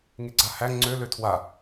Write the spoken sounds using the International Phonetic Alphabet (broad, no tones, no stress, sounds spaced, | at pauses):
ŋ e ɡ͡ǀ a h æ ŋ͡ǀ ø l ø tʰ w a